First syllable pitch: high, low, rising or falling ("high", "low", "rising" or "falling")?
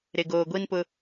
low